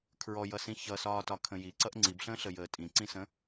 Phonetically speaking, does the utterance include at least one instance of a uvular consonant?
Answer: no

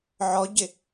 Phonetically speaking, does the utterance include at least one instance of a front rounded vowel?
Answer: no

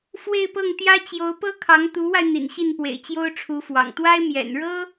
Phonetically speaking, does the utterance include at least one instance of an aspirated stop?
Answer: yes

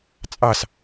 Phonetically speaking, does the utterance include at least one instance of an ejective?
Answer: yes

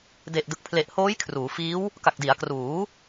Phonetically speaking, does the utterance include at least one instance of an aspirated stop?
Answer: yes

